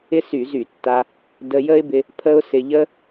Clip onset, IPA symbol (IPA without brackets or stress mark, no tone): ɪ